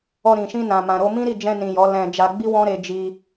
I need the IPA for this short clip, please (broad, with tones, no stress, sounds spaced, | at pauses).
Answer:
ɔ˧ ɾ ĩ˨ ʃ ĩ˧ n ã˨ m ã˨ ɾ o˧ m ĩ˦ ɾ i˦˨ d͡ʒ ɛ̃˧ n ĩ˨ j ɔ˨˦ l ɛ̃˧ d͡ʒ a˧ ɡ͡b i˦ w ɔ̃˦ ɾ e˧ d͡ʒ i˧